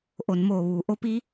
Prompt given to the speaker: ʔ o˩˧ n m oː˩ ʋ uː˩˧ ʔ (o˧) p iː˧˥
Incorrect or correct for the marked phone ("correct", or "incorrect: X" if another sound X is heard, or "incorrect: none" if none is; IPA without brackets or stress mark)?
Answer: incorrect: o˧˥